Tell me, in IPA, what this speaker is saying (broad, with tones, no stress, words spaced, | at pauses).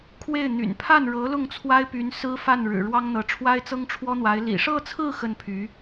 kʰwe˥˩ɪ̯n̪y̰˨˩n pʰa˥˩nɻɤ˧˥ lʊ˥˩ŋt͡sʰwa˥ɪ̯py˧˥n sɹ̩˥fa˥˩nɻɻ̩˨˩ ɻwɑ˥ŋn̪ɤ˧˥ ʈ͡ʂʰwa˥ɪ̯t͡sɤ˥ŋʈ͡ʂʰwɔ˥n̪wa˧˥ɪ̯ lḭ˨˩ʂɤ˥˧t͡sʰɹ̩˥˧ xə˥˩npʰy˧˥